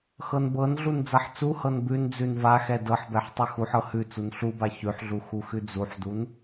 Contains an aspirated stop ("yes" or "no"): no